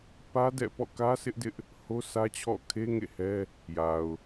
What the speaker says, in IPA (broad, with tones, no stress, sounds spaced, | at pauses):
p ä˦ d ɛ̰˦˨ p ɔ̰˦˨ k ä˦ sʰ ɪ˦ ʔ d ɪ˦ ʔ | h o˦ s ä˦ t͡ɕʰ ɔ̰˦˨ kʰ e˦ ŋ ḛ˦˨ h ɛ˦ | j a˨ ʊ̯